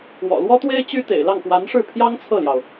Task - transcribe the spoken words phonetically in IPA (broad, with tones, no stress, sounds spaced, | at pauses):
w ɔ̰˨˩ l w ɔ˥ t̪ w e˥ ɪ̯ t͡ɕ y˥ t̪ ḛ˨˩ ɪ̯ l ɑ˥˩ ŋ p w a˧˥ n ʂ ɻ̩˥˩ pʰ j ɑ˥ ŋ t͡sʰ ɤ˥˩ l j ɑ˩ ʊ̯